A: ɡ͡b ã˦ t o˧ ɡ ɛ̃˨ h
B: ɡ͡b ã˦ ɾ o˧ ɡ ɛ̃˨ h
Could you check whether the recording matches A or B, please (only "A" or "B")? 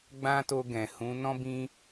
A